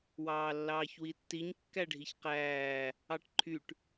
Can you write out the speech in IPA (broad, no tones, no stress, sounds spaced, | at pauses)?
w ɑː lː ɑː ç w i tː i ɲ kː æ ɖʱ i ç q æː | ɑ ʈ ǃʰ y ʈ